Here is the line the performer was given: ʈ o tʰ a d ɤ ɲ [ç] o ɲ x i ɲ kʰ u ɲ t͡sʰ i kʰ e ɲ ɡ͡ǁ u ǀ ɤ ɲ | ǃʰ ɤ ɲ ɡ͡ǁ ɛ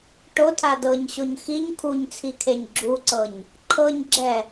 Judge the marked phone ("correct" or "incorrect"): incorrect